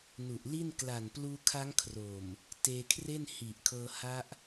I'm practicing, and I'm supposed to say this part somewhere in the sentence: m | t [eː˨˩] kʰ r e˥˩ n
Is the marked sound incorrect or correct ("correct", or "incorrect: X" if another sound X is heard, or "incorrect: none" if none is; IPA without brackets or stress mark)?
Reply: incorrect: eː˧